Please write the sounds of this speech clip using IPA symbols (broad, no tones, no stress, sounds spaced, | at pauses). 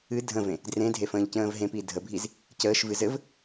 ɨ dʱ ə̃ v ẽ | d r ẽ dʱ e f ə̃ː ʎ c ə̃ː v ɦ ẽ p i dʱ ə bʱ i z | c əː ʃ v ɨ z ɘ v